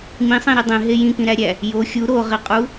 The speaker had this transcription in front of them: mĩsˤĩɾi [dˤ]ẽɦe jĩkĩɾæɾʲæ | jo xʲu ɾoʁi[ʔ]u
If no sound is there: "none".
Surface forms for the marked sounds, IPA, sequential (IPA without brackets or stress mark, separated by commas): dˤ, qʼ